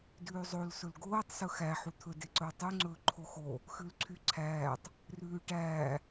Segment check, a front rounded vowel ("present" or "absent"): present